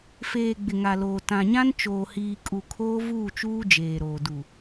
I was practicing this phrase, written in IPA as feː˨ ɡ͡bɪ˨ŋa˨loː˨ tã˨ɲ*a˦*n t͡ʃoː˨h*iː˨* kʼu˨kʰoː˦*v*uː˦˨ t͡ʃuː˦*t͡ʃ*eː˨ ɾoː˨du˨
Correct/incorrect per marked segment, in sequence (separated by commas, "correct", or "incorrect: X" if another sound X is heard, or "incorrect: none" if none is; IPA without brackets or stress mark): incorrect: ã˦, correct, correct, incorrect: d͡ʒ